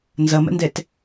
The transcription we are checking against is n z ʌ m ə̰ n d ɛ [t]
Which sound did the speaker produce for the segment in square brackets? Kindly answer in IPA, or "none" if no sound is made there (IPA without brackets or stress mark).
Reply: t